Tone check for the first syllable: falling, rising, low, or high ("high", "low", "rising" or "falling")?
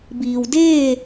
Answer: low